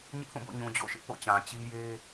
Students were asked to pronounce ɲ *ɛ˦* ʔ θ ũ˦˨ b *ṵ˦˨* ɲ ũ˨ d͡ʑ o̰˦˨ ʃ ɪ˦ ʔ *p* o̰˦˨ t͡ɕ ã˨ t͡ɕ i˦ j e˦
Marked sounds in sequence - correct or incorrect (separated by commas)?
incorrect, incorrect, correct